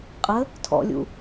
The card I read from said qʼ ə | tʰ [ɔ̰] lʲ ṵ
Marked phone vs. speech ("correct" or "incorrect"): correct